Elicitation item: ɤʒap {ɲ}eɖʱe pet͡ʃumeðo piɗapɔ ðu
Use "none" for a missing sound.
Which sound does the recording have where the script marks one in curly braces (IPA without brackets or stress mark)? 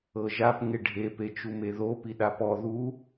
ŋ